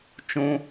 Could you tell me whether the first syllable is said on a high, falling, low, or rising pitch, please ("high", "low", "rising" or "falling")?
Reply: high